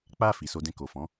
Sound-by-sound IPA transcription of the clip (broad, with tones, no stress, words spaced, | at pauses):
k͡pa˧ fi˨so˧dɛ̃˧ ko˨fɔ̃˨˦